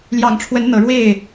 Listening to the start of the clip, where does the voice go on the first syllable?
low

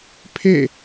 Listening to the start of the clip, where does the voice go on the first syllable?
falling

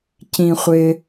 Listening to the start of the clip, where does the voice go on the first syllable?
low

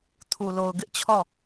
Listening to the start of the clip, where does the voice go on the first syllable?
low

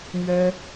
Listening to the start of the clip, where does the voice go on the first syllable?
high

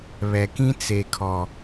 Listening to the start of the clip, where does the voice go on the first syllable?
low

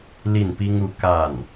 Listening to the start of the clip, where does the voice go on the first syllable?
falling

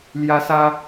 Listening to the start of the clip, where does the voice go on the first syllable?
high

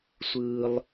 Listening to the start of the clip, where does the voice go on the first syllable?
high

